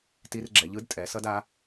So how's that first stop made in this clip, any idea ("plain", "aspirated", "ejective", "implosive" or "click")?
plain